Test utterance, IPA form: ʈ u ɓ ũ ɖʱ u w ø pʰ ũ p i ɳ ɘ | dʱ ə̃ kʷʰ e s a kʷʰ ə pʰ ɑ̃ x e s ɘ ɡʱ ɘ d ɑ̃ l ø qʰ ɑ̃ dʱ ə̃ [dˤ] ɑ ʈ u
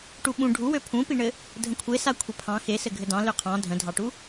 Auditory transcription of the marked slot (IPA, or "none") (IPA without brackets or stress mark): dʱ